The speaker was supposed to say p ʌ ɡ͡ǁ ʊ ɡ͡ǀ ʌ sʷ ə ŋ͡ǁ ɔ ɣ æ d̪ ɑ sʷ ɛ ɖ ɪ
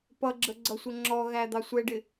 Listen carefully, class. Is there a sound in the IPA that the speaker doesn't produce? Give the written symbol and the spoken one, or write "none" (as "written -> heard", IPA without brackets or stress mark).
ʊ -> ə